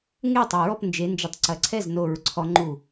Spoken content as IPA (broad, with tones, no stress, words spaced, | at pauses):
ŋe˥˩tˤɐ˧˩ɹɔ˥˩p nd͡ʒe˨˦nd͡ʒə˧˩tˤǀɐ˧˩ǀʰɛ˥˩z no˧˩ɹǀʰɔ˨˦ŋ͡ǃu˧˩